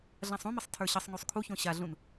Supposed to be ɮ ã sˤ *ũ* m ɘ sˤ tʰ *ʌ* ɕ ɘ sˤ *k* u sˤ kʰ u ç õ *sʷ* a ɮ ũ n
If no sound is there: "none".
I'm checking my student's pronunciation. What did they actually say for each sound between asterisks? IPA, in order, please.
ũ, ə˞, ŋ, ɕ

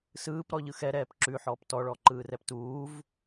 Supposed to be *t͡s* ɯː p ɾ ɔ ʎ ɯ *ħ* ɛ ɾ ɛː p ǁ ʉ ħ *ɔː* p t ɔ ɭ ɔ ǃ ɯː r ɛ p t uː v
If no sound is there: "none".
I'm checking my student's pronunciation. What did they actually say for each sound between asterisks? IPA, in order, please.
s, x, ɔː

